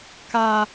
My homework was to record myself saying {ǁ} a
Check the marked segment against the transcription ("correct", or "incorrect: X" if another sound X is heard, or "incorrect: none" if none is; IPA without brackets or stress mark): incorrect: k